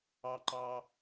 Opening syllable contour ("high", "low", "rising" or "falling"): high